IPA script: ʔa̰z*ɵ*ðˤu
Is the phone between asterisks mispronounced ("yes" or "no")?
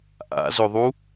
no